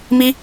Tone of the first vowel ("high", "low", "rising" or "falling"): high